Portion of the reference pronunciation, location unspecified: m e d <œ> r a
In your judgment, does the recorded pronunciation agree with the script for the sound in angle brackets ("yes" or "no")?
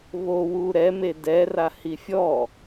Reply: no